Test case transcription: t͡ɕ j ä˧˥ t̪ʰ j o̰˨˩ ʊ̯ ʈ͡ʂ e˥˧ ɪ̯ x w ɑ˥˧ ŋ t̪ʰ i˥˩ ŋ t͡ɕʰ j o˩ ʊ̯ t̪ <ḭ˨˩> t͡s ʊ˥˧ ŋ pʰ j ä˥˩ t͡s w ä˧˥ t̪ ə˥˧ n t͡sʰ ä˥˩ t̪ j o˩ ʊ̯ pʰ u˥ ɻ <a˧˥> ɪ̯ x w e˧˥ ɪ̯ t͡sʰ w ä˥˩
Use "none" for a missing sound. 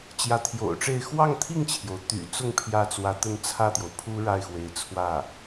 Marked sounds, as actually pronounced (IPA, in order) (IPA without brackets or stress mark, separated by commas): y̰˨˩, a˥˩